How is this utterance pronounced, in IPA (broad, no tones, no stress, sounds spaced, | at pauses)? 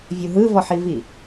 vʲ u ɦ ɯ v ɔ ħ i v i